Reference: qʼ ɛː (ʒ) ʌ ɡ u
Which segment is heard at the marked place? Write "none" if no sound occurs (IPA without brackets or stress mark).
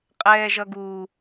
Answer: ʒ